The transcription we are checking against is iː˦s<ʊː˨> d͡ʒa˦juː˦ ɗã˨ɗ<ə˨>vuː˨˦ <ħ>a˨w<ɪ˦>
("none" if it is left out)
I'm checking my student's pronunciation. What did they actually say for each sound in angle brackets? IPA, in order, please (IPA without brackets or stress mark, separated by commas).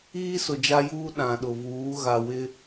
ʊ˨, ʊ˨, ɣ, ɪ˦